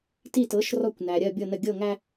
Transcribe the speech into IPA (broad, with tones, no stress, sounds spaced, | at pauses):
t i˦˨ t ɤ˨˥ ʃ r ɔ˦˨ kʷ n æ˨ ɾʲ ɜ˦˨ bʲ ɤ˦˨ n ə˦˨ ɡʲ ɤ˦˨ ŋ æ˦